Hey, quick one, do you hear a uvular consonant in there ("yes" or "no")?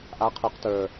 yes